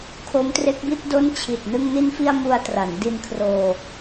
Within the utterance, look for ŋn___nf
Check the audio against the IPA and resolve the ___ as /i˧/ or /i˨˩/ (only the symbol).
i˧